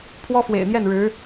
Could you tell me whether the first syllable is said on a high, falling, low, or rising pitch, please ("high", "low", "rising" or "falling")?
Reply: high